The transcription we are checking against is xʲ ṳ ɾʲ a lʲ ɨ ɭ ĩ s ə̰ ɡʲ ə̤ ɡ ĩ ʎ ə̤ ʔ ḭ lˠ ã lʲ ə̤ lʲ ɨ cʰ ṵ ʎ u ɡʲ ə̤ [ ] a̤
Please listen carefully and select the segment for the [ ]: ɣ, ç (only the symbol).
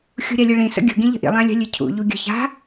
ç